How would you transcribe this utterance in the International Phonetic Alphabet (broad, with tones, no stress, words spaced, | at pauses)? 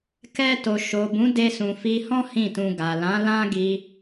kɛ˧to˨ ʃo˨bũ˨˦ de˧sũ˨fi˧hɔ̃˦ hĩ˦˨tũ˧ɡa˨ lã˨˦ lã˦ ɡi˧